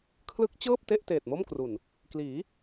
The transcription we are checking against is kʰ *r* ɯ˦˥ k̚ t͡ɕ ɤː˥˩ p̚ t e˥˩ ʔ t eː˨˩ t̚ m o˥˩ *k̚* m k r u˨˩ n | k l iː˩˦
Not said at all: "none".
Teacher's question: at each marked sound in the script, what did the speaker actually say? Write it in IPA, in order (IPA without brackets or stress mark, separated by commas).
l, none